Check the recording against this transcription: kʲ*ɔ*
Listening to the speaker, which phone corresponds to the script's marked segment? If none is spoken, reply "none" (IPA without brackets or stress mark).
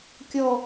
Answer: ɔ